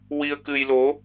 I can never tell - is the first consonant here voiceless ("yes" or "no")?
no